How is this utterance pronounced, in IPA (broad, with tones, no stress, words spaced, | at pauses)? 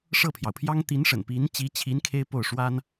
ʂɤ˥˩pʰjɑ˩ʊ̯pʰjɑ˥ŋ t̪i˧˥n ʂə̰˨˩n pi˧˥n t͡ɕi˧˥t͡ɕʰi˧˥n kʰe˥ɪ̯po˥˩ʊ̯ ʂwa˥n